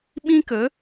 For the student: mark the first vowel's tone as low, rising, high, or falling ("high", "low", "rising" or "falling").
high